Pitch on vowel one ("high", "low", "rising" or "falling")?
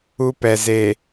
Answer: high